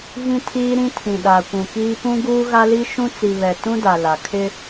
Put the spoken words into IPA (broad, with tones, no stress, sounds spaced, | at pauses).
ɣ ĩ˦ tʰ iː˦ ɾ ĩ˦ tʰ ĩ˨ ɗ a˨ kʷ ũ˨ k iː˦ p ũ˦ ɡ uː˦ ɣ a˦ l i˦ ʃ ũ˦ t͡s i˨ β ɛ˨ t ũ˦ d a˨ l a˨ kʰ ɪ˦